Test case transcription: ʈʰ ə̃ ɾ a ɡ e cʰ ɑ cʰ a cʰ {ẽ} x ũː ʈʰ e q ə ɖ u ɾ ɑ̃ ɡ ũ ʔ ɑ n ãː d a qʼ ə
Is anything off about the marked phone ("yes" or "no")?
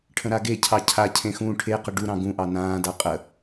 no